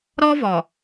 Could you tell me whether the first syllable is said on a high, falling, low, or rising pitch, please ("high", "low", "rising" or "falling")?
high